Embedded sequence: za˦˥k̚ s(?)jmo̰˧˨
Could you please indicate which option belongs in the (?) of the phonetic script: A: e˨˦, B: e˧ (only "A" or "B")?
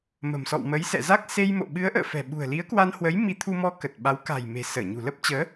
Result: B